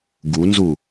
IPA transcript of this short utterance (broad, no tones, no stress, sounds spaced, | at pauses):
ɡ u n z u